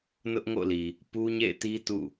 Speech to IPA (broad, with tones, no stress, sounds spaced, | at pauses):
n ʊ˦ ʔ ŋ o̰˦˨ l i˨ | p u˦ ɲ ḛ˦˨ ɪ̯ t i˦ t ṵ˦˨